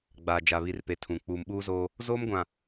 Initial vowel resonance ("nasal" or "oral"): oral